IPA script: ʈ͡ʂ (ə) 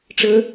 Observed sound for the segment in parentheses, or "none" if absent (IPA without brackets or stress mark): ə